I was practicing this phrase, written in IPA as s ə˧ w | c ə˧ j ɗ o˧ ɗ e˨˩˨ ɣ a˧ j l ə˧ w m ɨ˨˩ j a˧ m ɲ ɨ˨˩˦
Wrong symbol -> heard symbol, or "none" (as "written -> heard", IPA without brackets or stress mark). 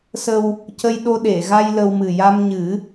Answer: none